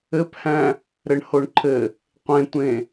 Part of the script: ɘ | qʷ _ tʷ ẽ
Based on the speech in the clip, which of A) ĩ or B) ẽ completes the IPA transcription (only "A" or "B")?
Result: B